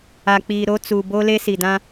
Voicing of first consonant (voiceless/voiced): voiceless